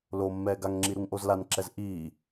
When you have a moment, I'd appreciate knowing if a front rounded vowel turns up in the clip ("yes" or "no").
no